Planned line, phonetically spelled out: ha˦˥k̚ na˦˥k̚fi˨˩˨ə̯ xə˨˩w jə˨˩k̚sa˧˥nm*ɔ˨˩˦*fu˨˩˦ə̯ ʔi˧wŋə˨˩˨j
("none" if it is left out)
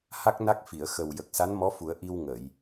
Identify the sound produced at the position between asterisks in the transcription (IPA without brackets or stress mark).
ɔ˧˥